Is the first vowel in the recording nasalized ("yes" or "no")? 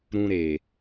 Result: yes